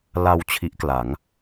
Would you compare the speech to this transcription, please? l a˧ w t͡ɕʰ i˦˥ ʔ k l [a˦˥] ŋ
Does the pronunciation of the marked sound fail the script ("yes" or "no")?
yes